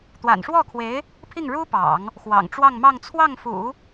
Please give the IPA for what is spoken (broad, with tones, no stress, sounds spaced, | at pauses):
t̪ w a̰˨˩ n ʂ w ɔ˥˩ kʰ w e˧˥ ɪ̯ | pʰ i˥˩ ŋ ɻ u˥ p ɑ̰˨˩˦ ŋ | x w ɑ̰˨˩ ŋ ʈ͡ʂ w ɑ˥˧ ŋ m ɑ˥˧ ŋ t͡sʰ w ɑ˥˩ ŋ f ṵ˨˩˦